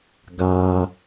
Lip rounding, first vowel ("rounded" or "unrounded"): unrounded